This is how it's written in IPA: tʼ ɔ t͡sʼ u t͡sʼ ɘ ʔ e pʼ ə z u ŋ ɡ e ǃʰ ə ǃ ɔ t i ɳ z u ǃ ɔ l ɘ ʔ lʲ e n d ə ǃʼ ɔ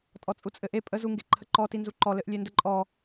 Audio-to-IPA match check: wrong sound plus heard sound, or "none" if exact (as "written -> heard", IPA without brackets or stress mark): ɳ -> n